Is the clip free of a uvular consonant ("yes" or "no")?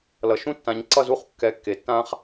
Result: no